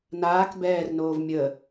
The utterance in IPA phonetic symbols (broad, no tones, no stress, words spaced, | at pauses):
naːk bɛːrnoːv mʲə